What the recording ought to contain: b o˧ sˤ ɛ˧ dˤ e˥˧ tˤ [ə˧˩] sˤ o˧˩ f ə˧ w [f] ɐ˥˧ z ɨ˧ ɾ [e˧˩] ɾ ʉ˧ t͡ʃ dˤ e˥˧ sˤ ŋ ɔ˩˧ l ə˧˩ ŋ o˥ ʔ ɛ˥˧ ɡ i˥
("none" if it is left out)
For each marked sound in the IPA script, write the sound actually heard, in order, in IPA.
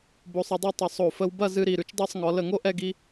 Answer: ə˧˩, b, i˧˩

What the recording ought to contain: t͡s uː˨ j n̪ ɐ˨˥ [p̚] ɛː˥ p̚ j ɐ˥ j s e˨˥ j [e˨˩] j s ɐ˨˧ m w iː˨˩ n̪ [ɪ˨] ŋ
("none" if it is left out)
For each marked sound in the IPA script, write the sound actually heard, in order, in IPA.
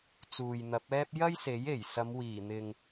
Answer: p̚, e˨˩, ɪ˨

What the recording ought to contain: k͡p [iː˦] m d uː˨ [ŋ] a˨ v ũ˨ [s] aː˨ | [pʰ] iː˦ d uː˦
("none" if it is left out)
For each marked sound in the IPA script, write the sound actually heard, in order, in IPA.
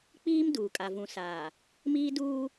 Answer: iː˦, kʼ, s, m

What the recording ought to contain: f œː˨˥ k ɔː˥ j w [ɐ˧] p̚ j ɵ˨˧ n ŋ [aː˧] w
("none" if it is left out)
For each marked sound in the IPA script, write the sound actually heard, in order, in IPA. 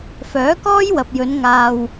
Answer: ɐ˨, aː˧

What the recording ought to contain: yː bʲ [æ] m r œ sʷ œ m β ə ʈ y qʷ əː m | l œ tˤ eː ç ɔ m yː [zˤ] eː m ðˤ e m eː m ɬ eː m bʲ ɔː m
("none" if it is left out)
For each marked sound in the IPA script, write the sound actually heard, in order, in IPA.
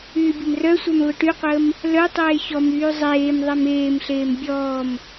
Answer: ə, zˤ

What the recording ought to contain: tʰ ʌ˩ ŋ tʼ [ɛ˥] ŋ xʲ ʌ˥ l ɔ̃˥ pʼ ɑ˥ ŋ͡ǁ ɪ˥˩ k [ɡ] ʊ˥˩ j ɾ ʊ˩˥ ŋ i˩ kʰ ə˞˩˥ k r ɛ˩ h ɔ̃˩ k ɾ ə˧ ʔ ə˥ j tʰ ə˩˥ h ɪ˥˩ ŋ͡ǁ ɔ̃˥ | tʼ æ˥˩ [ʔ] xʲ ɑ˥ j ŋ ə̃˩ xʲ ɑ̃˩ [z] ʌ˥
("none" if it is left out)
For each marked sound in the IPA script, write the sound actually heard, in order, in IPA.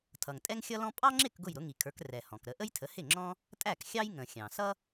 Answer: ɛ˥, ɡ, k, s

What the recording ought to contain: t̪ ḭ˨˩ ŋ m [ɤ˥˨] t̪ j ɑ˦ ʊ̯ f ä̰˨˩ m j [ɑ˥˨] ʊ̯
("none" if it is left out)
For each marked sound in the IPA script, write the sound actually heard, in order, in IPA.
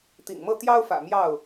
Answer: ɤ˥˨, ɑ˥˨

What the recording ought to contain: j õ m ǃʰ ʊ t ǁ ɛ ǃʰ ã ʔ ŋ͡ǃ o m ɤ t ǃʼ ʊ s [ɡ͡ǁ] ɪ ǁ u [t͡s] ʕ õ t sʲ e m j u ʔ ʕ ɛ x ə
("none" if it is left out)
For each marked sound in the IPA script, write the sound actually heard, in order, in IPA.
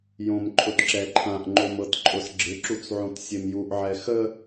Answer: ɡ͡ǁ, t͡s

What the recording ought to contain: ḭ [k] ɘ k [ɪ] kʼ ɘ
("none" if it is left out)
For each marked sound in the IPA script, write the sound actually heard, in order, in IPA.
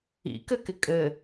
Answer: k, ɪ

